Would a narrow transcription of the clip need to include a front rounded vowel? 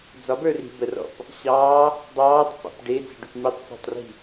yes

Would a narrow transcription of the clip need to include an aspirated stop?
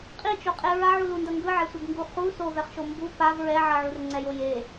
no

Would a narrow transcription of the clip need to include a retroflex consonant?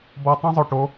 yes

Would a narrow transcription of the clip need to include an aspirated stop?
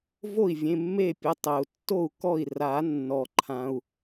yes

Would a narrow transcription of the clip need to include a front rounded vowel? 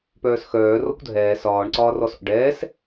yes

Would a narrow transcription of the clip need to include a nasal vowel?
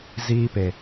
no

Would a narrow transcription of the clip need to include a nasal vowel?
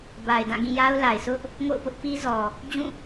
yes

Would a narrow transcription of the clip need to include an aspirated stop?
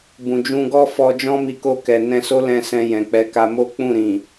no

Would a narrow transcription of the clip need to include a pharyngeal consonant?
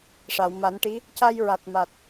no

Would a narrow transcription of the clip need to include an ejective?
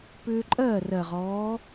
yes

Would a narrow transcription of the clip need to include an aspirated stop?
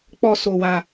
no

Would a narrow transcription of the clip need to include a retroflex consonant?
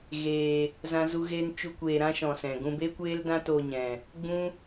no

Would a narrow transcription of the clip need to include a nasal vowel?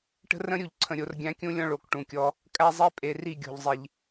yes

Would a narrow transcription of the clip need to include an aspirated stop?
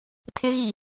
yes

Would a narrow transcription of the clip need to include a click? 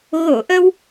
no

